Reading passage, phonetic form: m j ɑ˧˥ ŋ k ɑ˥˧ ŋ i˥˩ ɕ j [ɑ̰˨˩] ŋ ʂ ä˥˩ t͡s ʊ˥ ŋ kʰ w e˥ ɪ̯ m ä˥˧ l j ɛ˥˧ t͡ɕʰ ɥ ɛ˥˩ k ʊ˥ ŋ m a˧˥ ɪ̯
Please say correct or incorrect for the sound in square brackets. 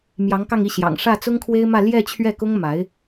correct